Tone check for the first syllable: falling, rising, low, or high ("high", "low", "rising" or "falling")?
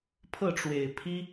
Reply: falling